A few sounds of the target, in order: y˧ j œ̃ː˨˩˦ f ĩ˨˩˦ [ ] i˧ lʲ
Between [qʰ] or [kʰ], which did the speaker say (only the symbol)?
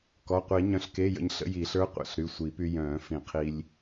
qʰ